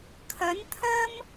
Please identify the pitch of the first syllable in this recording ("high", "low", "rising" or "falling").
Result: rising